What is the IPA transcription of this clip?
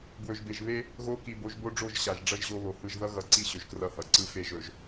bwɵ˨ʒbe˨ʒβe˦ | ɣo˦ ki˨bo˨˦ʒbo˦ɖ͡ʐo˦˨ʒ ɕa˨ʒ ɖ͡ʐʌ˦ʒʑo˦βo˨ hɯ˨ʒðʌ˦ɣʌ˨ǀi˦˨ ɕɵ˨ʒkrʌ˦˨hʌ˨ ǀɯ˦fe˦˨ʒɵ˨ʒ

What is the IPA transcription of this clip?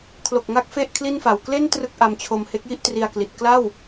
kʰlo˨˩k̚ŋa˦˥k̚ fe˥˩ʔkʰli˥˩nfa˨˩w kle˥˩n trɯ˥˩k̚ʔa˧m t͡ɕʰo˧m he˦˥k̚ji˥˩ʔtri˧a̯kli˨˩t̚ kla˥˩w

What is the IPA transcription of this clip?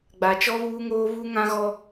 ɡ͡ba˨t͡ʃɔ˦ βuː˦ŋoː˦ βu˦ŋã˦ɣɔ˦

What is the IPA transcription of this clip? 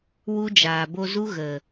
wu˦d͡ʒaː˨ bo˧zu˦ ɣə˨

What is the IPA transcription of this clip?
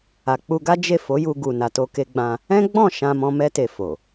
a˨k͡pu˧ɡa˦ d͡ʒe˦˨fo˨˦ju˧ ɡu˨ na˨to˧ke˧ɡ͡bã˧ | ɛ̃˦ɡ͡bɔ̃˦˨ ʃã˧mɔ̃˧ mɛ˦te˧ fo˨

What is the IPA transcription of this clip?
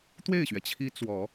t̪we˥˩ɪ̯ɕɥɛ˩t͡ɕʰi˧˥ t͡swɔ˨˩˦

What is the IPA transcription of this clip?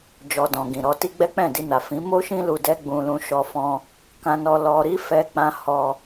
d͡ʒɔ˨dɔ̃˨ ɡĩ˨ɾɔ˧ti˦ɡ͡bɛ˦ k͡pɛ̃˦˨di˧na˨ fĩ˨˦mo˦ʃĩ˦lu˧ dɛ˦ɡ͡bũ˧ lũ˧ʃɔ˧fɔ̃˧ | kã˧nɔ˧ lɔ˧ɾi˦ fɛ˦k͡pã˦ hɔ˧

